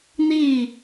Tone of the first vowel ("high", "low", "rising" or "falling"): falling